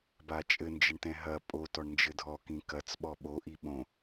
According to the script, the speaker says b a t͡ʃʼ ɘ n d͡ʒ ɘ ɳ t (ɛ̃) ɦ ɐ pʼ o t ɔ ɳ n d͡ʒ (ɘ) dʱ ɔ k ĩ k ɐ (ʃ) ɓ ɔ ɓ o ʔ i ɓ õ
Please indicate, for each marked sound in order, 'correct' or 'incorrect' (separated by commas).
correct, correct, incorrect